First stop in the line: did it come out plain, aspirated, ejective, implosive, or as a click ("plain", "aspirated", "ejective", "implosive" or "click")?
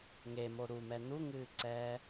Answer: click